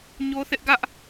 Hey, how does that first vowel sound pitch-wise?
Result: high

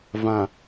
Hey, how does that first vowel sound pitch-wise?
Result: low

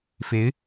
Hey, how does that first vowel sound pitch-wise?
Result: rising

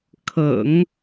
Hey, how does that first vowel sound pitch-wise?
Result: low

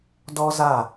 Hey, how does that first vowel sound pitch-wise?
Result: high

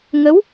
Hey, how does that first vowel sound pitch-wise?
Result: rising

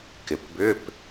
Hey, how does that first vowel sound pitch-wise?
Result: low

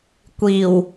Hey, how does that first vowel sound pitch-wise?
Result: low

